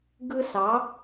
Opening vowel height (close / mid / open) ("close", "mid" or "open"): close